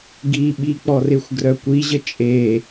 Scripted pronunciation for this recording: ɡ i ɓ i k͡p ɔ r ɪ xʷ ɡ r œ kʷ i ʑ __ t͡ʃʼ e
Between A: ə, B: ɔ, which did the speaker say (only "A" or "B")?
A